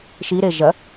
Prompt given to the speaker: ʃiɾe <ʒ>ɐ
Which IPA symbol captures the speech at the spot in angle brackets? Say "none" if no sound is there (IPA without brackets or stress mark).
ʒ